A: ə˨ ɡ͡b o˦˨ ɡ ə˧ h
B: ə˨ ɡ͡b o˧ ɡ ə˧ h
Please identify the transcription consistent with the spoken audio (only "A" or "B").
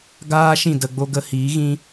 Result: B